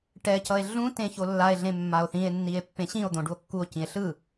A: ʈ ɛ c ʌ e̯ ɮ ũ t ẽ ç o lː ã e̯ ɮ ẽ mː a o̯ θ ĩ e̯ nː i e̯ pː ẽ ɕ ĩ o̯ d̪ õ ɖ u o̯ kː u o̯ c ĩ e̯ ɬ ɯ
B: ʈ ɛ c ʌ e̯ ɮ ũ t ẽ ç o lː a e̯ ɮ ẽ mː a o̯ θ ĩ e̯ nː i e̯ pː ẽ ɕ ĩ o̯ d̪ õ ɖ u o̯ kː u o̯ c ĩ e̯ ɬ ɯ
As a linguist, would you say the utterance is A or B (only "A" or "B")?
B